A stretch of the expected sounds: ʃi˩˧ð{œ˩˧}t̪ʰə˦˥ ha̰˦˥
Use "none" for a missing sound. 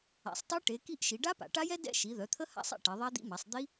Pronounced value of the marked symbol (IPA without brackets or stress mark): œ˩˧